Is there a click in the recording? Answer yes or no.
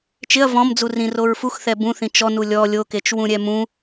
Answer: no